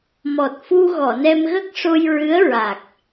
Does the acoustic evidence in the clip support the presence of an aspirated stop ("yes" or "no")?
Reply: no